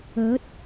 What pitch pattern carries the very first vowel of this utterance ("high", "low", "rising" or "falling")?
rising